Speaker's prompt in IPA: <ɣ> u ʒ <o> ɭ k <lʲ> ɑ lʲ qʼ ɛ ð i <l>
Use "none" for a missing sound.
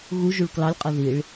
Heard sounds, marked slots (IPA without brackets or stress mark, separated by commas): ɣ, u, l, ɭ